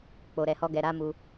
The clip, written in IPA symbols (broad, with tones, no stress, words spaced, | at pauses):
k͡po˨ɾɛ˨hɔ˧ɡɛ˨ ɾa˨˦mu˧